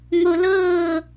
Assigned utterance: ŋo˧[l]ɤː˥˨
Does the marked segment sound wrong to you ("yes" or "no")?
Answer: no